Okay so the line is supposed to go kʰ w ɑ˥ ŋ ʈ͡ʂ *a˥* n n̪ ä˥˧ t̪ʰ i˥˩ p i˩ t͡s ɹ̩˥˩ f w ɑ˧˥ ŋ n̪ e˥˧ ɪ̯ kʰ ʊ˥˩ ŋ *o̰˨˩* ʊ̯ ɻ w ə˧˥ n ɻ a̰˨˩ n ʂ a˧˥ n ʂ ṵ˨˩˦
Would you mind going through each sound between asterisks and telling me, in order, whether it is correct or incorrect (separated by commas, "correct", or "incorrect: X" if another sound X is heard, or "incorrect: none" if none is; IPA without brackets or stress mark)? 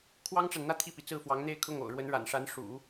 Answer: incorrect: a˨, correct